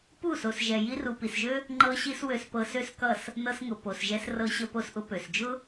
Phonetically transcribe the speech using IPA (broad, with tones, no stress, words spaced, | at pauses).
pu˦˨so˨sʒɛ˨ ji˧ru˨pi˨sʒø˦ | ŋ͡ǃɤ˧ɕi˧s wø˧spɤ˧sø˦skʌ˦˨s | nɤ˧sŋʊ˨ po˨sʒɛ˧s rɤ˧ɕə˧po˧sʔʊ˧ pø˨sd͡ʒʊ˦